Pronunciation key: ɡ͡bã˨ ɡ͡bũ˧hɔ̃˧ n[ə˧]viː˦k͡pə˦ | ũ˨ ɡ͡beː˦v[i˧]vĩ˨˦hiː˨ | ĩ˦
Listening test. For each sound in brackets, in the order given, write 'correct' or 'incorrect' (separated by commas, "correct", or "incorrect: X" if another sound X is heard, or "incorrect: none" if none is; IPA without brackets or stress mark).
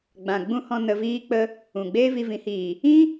correct, correct